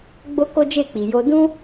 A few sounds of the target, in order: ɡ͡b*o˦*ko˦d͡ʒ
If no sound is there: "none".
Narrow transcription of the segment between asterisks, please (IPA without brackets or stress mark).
o˦